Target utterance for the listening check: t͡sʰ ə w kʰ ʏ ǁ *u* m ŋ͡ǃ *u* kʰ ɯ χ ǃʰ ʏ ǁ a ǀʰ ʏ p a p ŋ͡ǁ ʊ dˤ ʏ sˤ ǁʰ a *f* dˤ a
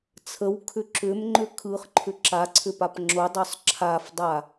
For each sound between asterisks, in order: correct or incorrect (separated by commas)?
incorrect, incorrect, correct